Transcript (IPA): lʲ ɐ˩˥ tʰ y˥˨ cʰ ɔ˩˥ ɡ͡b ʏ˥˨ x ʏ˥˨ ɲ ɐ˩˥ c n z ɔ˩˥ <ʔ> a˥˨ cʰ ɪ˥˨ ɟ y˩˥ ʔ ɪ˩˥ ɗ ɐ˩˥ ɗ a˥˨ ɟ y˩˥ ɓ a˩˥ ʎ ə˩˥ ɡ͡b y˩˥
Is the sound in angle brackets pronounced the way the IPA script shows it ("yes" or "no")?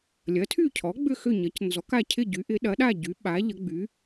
no